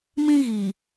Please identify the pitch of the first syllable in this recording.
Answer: high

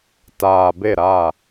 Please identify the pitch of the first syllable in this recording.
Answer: low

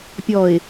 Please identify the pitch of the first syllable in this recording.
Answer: low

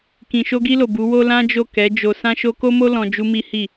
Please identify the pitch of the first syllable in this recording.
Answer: low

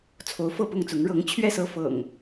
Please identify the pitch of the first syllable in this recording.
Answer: rising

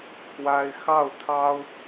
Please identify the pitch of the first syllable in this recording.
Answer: high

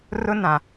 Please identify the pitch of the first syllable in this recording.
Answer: high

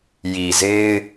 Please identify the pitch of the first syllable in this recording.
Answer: low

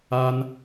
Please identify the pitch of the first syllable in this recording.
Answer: high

